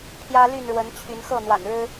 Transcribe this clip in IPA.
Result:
pʰ j ä˦ l y˥˨ n ɻ w ə˨˦ n t͡ɕʰ y˨˦ n x ɤ˥˨ n̪ w a̰˨˩ n ɻ ɻ̩˦

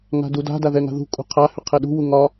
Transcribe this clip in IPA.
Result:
ŋ a̤ d u d a̤ d a ð ɛ ŋ a̤ ð ṳ kʼ ṳ qʰ a h ʏ qʰ ɛ ɗ ṳ w u ŋ ɒ

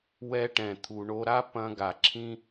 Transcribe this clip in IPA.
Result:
w ɛ˧ ʈ ɛ̃˨ t̪ʰ u˨ ɳ o˧ ɾ a˦ p ɐ̃˧ ɡ a˨ ǁʰ ĩ˦

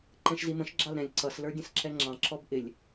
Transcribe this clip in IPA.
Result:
ǃ ɛ̃ ʃ z i m ə̃ ʃ ɡ͡ǁ ɑ l ɾ ɛ̃ lʲ ǀ ʌ s l ə˞ dʲ ə̃ s ǁ ɛ ŋ͡ǁ ɑ̃ ǁ ɔ b ʔ ɪ lʲ

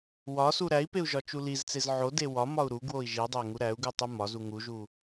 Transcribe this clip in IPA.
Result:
w ɒ s u ɾ æ i̯ p e u̯ ʒ ɒ t͡ʃ u l i z t͡s e z ʕ o d e w ɒ m ɒ u̯ ɾ u ɡ w o i̯ ʒ i dˤ æ ŋ u ɾ æ u̯ ɡ u tˤ u m ɒ z u ŋ u ʒ u

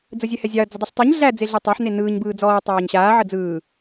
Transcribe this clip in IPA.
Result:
d͡z ə zʲ ɛ h ɛ zʲ ɑ ɐ̯ d͡z ɐ dˤ ɛ ɬ tˤ ɯ ɲ ɮ æ d͡z e ɮ ɯ tˤ a ħ n e n ɯː ɲ b ɯː d͡z ɔː tˤ aː ɲ ɕ aː ʕ ə d͡z ɯː

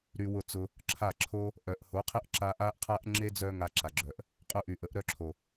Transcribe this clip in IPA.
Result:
ɾ y˧ w ʊ˦˨ t͡s ʊ˧ | ǁʰ a˦˨ ǁʰ o˦ | ʔ œ˨ ʔ h o˨˦ qʰ ə˦ ʔ ǁ a˦ ʔ a˦ ʔ qʰ a˦ ʔ ŋ͡ǁ e˦ d͡z œ˦ ŋ a˧ ǁ a˨ ɡ͡ǁ œ˨ ʔ | qʼ ʊ˧ ʔ y˨ ʔ ə˨˦ ʔ ɾ œ˧ ǁʰ o˨

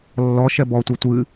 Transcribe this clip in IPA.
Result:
lː ɔ ʃ ɛ b ɔ tʷ e tʷ ɨ

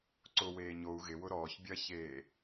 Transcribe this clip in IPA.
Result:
ǀ ʊ w eː ɲ o u̯ ɣ ɪ w ʊ ɾ ɔː ç bʲ ɐ ç eː

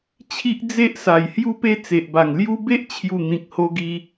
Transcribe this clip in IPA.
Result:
t͡ɕʰ i˦ ʔ d͡z e˦ ʔ s a˨˩ j h j u˧ p e˧ t͡s e˨ ʔ b a˨˩ ŋ l j u˦ b e˦ ʔ t͡ɕʰ j u˨˩ n̪ ĩ˨ k̚ h o˧ ɡ i˧

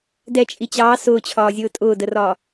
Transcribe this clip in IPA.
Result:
d ɛ t͡ʃʼ i t͡ɕ ɑː s ʊː t͡ɕʰ ɒː zʲ ʊː tʼ ʊː d ə r ɒː

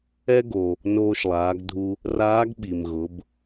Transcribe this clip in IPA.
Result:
ɛ˥ ɡ o˩ | n oː˧ ʃ lˠ aː˩˧ ɡ dʱ u˧ | r aː˧˥ ɡ ɓ i˩ m ɣ ʊ˩˧ b

